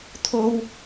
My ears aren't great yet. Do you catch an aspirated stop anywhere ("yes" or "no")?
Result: yes